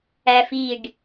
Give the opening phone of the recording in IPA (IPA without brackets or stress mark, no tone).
æ